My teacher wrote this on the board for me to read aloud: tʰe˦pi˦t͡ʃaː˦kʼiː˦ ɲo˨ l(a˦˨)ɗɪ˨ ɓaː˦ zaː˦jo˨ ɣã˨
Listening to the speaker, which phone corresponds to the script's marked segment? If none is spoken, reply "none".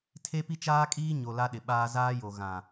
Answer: a˦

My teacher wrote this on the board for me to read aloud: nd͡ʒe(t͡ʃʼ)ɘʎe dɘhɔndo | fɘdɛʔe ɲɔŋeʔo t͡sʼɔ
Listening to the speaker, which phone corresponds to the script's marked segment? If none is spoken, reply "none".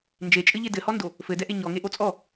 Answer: t͡ʃʼ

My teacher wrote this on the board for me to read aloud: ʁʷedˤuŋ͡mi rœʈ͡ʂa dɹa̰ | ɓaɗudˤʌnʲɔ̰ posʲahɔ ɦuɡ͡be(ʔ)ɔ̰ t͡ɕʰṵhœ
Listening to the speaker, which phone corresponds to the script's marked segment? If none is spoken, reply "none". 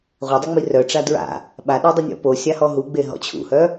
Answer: ɦ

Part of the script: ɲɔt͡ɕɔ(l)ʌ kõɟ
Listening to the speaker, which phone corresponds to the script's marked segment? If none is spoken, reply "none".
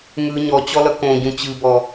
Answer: l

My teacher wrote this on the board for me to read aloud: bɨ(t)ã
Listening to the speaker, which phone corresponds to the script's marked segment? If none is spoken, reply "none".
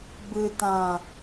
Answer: t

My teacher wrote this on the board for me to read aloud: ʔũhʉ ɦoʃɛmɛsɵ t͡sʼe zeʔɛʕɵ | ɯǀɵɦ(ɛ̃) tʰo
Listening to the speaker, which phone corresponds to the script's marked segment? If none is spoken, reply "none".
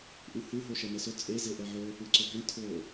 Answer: ɛ̃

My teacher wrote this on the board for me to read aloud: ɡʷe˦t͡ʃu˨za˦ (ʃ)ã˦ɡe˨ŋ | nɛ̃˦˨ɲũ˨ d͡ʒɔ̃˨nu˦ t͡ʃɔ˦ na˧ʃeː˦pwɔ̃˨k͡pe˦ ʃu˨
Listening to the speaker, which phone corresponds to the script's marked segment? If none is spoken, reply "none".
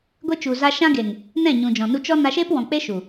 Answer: ʃ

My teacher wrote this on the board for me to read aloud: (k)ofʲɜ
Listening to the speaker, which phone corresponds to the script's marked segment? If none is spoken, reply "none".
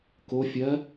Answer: k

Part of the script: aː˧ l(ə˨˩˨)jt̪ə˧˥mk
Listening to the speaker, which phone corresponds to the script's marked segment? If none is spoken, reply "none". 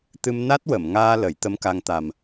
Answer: ə˨˩˦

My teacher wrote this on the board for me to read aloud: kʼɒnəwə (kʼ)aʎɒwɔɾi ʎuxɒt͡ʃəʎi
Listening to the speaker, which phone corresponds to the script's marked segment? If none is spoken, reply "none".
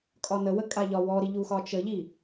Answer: kʼ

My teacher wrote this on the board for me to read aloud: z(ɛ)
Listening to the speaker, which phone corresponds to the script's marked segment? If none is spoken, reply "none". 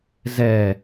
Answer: ɛ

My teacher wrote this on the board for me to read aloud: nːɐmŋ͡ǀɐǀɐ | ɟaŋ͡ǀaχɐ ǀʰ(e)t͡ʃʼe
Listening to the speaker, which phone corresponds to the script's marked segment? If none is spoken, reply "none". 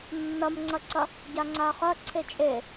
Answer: e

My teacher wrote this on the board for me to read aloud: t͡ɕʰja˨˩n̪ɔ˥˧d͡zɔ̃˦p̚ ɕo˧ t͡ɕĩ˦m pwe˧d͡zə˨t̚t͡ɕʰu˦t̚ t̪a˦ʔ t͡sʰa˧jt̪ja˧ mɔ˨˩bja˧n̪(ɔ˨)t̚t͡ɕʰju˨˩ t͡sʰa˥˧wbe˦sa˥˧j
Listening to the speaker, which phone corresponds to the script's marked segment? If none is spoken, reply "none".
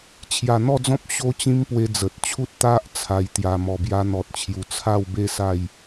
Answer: ɔ˨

